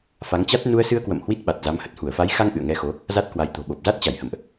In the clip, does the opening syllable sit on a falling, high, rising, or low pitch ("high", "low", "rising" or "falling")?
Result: rising